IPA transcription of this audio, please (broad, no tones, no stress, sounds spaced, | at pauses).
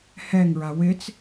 h ɛ ŋ ɹ a w ɪ t͡s